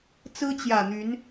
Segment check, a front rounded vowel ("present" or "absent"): present